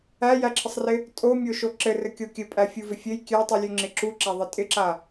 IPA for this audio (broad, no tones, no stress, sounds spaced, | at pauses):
æ j æ ǁʰ ɪ sˤ r ɪ | tʼ o mʲ o ʃ o ǁ ɘ r ɘ kʲ o kʲ ɘ pʼ æ fʲ u v ɪ fʲ ɘ j kʲ æ tˤ u lʲ ʉ ŋ͡ǁ ɪ ǁ u ǁ æ ðˤ ɪ tʼ ɪ ǁ a